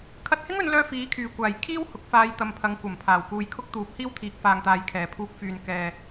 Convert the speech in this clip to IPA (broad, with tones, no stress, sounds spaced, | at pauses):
kʰ ɐ˧ t̚ h ɪ˥ ŋ ɵ˨˧ n l œː˧ f iː˨˥ kʰ yː˨˩ kʷ aː˨˩ j kʰ iː˥ w h ʊ˨˥ k̚ f aː˧ j t̪ ɐ˨ m pʰ ɐ˨˧ ŋ kʷ ɐ˨˩ m pʰ aː˨˩ w k uː˨ j kʰ ʊ˥ k̚ t̪ uː˨˥ p̚ h iː˥ w t̪ʰ iː˨˥ k̚ f aː˨ ŋ t̪ aː˨ j kʰ ɛː˨ pʰ uː˧ k̚ f yː˨ n k ɛː˨